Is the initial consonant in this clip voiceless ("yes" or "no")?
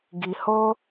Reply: no